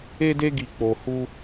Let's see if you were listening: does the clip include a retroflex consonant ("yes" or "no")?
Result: no